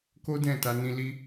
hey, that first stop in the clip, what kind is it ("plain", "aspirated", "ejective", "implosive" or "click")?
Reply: plain